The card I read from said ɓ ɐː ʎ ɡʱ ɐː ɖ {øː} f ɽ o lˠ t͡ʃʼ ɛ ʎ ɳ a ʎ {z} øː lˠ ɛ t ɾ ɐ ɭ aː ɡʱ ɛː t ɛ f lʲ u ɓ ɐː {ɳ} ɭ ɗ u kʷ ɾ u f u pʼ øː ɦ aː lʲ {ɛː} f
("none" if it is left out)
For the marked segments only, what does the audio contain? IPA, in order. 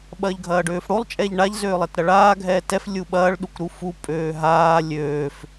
øː, z, none, øː

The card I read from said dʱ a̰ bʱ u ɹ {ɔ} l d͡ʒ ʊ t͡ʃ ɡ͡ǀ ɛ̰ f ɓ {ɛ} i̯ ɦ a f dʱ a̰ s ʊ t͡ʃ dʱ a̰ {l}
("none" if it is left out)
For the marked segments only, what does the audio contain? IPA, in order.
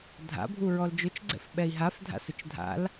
ɔ, ɛ, l

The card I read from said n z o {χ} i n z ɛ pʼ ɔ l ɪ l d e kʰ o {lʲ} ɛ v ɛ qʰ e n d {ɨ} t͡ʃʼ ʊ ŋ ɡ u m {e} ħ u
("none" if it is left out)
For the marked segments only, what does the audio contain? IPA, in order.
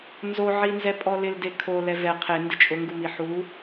ʕ, l, ɪ, i

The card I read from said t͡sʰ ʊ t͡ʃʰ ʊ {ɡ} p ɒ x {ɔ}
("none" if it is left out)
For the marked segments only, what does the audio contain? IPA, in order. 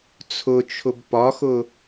b, ʊ

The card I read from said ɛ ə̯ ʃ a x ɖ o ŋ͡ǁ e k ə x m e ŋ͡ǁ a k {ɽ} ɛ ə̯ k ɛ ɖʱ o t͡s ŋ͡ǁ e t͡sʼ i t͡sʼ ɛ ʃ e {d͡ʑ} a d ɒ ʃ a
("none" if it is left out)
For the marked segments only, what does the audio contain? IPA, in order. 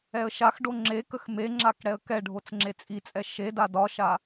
ɽ, d

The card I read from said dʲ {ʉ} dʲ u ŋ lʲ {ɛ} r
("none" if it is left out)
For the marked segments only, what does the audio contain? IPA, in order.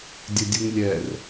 ə, ɛ

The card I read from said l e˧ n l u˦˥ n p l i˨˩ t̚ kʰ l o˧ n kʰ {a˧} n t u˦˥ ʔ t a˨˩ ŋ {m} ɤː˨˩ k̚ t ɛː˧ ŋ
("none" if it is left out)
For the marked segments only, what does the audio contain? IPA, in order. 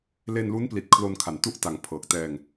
a˨˩, pʰ

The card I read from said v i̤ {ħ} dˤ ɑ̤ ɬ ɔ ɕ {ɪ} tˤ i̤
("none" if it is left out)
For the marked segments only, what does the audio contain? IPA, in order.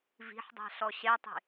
ħ, ɛ

